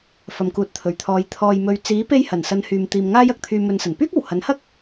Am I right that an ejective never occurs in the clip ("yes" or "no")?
yes